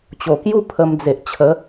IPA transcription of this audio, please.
t͡ɕ o˨˩ k j u˥˧ pʰ ə˧ m d͡z e˨ ʔ t͡ɕʰ ə˨˦

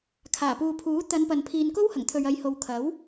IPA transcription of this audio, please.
kʰ aː˨˩ p uː˨ pʰ uː˨˥ t̪ ɐ˨˧ n p ɐ˨ n pʰ iː˨ n k o˥ w h ɐ˨˩ ŋ t̪ʰ ɵ˨ ɥ ɐ˨ j h o˨ w kʰ ɐ˨˥ w

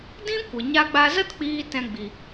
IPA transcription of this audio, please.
d ĩ˦ kʷ ə˨ ɲ a˧ ɡ͡b a˧ z ə˦ t k͡p iː˧ t ɛ̃˧ ɡ͡b i˨

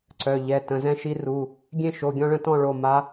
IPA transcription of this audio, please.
ǀ œ˩˧˩ ʎ ɛ˩˧˩ t ə̃˩˧˩ z ɛ̃˥˧ ʃ i˧˥ r u˩˧˩ | ɡʲ ẽ˥˧ ʃ o˩˧˩ ɡʲ ɔ̃˥˧ ɭ ə̃˥˧ t ɔ̃˥˧ ɭ o˩˧˩ m a˧˥

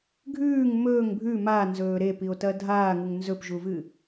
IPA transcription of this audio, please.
ɡʱ ʉː ŋ m ɵː ŋ bʱ ʉ m a n z ɵː ɾ e p i o̯ t ɐ dʱ aː ŋ u ŋ n z ɵ p ʒ u v ɨ

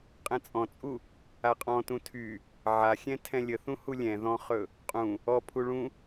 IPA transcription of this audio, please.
qʼ ɛ̃ t͡sʼ ɔ̃ t͡sʼ u | a qʼ ɔ̃ t ũ tʰ y | ʕ a xʲ ɛ̃ tʰ ɛ̃ lʲ ə θ ũ h u lʲ ɛ̃ ð ɔ̃ χ ɵ | qʼ ũ | ɔ pʰ u ɭ ũ

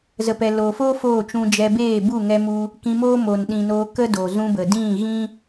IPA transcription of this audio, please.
z ə˨ p ɛ˨ l oː˨ f oː˦ f oː˦˨ t͡ʃ ũ˧ d͡ʒ ɛ˧ b eː˦˨ b u˦˨ ŋ ɛ˧ m u˧ | k ĩ˧ m oː˦ m o˨ n ɗ ĩ˨ n oː˧ k ə˦ d o˨ z ũ˧ b ə˨ d ĩ˦˨ ɣ ĩ˦

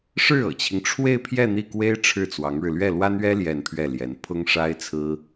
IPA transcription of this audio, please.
ʂ ɻ̩˥˩ ɤ̰˨˩ t͡ɕʰ i˦ ŋ ʈ͡ʂʰ w e˥˧ ɪ̯ pʰ j ɛ˥˧ n̪ i˥˩ k w e˥ ɪ̯ ʈ͡ʂʰ ɻ̩˥˩ t͡s w ɑ˧˥ ŋ ɻ ɻ̩˧ l ɥ ɛ˥˩ l w a˥ n ɥ ɛ˥ l j ɛ˥˧ n pʰ ɥ ɛ˥˩ l j ɛ˧˥ n pʰ ʊ˥ ŋ ʂ a˥ ɪ̯ t͡sʰ ɹ̩˥

